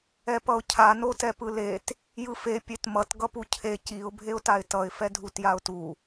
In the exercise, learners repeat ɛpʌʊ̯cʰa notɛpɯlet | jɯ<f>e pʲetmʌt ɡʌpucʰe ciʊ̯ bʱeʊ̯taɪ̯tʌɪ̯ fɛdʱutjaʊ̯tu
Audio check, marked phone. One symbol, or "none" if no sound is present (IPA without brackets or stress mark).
f